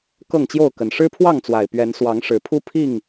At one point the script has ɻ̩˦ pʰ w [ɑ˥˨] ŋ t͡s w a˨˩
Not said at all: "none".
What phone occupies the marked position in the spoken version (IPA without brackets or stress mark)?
ɑ˥˨